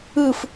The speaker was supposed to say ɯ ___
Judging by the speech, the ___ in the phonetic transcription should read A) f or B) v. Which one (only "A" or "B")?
A